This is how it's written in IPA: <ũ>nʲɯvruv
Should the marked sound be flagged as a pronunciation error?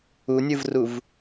yes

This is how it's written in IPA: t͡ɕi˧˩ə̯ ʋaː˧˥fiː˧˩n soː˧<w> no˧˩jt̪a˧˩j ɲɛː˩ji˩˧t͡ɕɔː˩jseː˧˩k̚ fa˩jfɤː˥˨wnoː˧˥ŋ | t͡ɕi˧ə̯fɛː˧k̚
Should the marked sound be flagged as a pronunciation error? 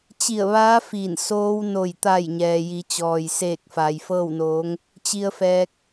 no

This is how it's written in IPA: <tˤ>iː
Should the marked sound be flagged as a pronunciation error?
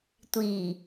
yes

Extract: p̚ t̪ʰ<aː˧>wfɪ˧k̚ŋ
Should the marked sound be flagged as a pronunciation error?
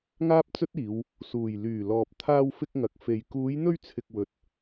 no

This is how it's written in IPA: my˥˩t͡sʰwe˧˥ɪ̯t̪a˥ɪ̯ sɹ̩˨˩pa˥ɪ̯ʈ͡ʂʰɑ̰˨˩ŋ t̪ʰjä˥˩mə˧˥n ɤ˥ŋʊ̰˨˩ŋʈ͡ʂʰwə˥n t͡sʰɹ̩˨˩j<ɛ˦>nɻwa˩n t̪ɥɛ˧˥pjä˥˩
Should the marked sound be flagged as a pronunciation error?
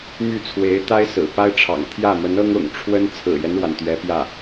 no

